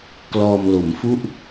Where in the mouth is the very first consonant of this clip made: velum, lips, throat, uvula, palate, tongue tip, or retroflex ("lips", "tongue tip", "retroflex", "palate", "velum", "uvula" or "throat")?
velum